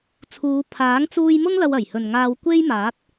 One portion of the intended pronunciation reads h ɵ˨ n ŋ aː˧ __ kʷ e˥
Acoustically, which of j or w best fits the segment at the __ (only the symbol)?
w